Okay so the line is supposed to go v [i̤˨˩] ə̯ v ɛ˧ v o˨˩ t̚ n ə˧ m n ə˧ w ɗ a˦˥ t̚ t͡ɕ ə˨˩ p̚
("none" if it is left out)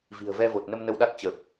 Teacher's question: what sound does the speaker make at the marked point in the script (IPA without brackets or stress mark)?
i̤˨˩